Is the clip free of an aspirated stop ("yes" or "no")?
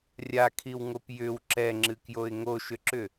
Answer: no